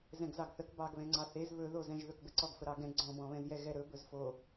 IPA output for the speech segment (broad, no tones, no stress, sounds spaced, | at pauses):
z ɛ̃ ɡ z ɑ ɡ θ ə k b ɑ ɡ β ɛ̃ ŋ͡ǀ ɑ θ e z β ɵ ð o z ɛ̃ ʒ ð ɵ k b ə ǀ ɔ ɡ f ə ɾ ɑ ɡ ɛ̃ ɡ͡ǀ ɔ̃ b ɔ̃ β ɛ̃ z j ɛ ɣ ɛ ɾ ɵ b ɵ z f o